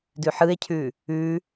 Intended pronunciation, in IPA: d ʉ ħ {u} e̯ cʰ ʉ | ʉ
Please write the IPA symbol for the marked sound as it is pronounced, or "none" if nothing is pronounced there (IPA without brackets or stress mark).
ɯ